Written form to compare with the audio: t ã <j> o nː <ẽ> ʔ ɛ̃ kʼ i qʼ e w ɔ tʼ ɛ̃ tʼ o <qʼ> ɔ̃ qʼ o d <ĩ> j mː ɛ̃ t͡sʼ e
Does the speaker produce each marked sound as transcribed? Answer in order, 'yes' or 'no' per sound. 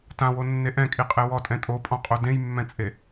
no, no, no, no

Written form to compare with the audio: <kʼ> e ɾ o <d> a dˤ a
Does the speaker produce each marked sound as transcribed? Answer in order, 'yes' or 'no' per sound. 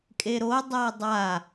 yes, no

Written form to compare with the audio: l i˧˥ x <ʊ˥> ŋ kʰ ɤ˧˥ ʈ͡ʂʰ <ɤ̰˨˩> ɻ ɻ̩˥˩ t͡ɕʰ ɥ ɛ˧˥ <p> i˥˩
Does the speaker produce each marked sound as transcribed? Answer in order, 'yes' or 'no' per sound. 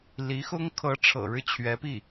yes, yes, yes

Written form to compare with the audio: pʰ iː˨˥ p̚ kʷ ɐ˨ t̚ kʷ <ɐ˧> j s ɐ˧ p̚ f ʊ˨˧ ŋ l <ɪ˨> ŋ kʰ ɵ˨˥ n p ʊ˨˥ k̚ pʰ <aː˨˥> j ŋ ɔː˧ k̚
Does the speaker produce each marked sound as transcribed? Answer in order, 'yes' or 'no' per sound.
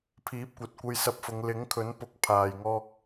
yes, no, no

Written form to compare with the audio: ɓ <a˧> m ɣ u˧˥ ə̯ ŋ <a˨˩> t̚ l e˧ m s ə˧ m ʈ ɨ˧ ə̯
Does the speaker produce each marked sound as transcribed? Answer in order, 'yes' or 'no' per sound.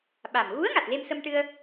no, yes

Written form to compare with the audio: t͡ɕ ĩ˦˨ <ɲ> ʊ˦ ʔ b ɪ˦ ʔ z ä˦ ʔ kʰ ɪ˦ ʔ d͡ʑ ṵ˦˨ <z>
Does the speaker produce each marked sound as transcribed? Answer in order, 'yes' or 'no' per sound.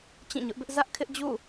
yes, no

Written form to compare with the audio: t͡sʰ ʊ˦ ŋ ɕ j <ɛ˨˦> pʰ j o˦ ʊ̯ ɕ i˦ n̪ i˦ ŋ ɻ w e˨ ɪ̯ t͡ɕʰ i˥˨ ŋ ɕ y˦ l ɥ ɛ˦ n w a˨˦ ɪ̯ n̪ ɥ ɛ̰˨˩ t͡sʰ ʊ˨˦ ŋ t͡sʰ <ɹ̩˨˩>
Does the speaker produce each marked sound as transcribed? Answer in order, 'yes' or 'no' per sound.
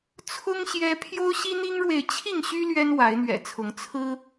no, no

